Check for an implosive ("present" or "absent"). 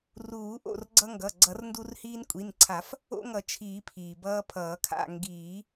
absent